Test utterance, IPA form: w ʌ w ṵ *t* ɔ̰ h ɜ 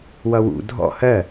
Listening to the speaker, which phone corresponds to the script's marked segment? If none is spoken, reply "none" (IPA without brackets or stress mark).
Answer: dʱ